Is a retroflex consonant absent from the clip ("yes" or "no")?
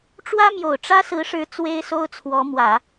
no